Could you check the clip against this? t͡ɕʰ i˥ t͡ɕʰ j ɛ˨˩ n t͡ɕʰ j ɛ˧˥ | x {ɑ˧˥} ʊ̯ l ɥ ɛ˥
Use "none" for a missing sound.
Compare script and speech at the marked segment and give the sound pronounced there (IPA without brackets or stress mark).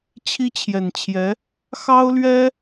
ɑ˥